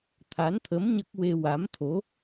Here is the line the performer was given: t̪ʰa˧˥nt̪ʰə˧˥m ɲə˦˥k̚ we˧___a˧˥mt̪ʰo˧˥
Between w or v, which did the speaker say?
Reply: w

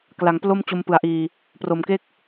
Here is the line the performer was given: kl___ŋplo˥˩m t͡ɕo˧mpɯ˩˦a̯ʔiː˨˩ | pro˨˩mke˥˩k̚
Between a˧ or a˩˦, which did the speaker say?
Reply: a˩˦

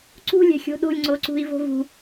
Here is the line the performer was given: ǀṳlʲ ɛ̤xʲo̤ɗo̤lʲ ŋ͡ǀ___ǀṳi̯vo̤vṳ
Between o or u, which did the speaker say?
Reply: o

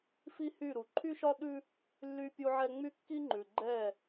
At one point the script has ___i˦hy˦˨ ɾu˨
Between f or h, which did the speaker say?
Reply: f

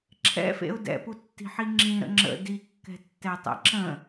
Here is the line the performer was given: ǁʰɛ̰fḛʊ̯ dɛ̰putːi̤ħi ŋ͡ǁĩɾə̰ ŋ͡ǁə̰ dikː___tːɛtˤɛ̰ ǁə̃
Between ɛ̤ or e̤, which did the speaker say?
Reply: ɛ̤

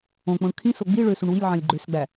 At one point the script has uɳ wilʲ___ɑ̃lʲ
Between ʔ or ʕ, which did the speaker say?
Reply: ʕ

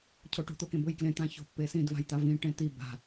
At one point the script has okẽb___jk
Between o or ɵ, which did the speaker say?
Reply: ɵ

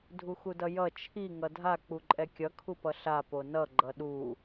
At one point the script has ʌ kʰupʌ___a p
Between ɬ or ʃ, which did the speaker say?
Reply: ɬ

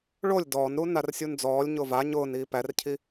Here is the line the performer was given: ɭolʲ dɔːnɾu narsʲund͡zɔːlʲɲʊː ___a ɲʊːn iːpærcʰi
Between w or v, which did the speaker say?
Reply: v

